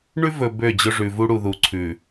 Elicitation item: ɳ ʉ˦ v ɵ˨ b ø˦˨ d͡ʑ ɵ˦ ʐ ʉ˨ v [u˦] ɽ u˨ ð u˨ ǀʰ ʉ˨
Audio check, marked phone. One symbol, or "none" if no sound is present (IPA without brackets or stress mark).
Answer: u˦